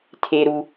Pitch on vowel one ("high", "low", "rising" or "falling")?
high